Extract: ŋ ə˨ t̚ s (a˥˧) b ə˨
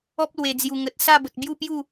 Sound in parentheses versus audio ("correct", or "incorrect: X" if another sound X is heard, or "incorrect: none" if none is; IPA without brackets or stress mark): correct